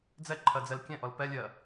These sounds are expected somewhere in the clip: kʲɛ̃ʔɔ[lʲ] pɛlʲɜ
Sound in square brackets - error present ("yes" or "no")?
yes